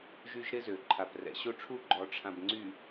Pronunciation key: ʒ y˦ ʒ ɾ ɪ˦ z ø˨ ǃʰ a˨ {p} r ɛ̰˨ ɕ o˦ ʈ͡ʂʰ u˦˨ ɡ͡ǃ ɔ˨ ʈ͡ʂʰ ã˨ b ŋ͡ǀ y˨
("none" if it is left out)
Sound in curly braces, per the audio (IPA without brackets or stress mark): p